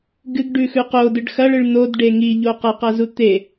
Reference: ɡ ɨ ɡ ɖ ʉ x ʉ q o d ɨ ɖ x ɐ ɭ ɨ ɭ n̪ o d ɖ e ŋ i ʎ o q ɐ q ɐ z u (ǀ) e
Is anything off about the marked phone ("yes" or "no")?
yes